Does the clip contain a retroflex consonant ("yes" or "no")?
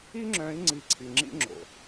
no